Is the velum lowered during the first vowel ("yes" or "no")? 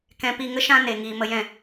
yes